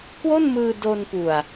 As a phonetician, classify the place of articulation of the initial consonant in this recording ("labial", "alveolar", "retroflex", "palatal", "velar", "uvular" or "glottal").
velar